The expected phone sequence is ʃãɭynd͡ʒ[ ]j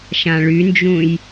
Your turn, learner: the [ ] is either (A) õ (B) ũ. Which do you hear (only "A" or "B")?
B